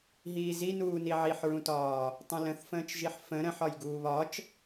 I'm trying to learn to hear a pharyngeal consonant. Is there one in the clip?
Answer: yes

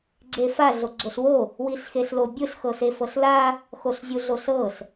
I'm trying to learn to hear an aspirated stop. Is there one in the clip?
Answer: no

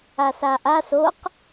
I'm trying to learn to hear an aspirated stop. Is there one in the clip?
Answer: no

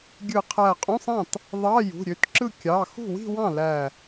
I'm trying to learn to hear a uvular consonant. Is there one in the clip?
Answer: yes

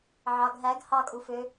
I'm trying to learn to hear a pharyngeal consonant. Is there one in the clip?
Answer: yes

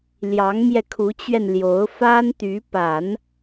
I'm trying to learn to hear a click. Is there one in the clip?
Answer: no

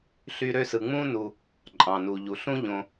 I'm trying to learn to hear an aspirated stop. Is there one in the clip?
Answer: no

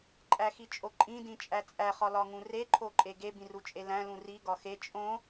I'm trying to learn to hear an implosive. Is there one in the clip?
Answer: no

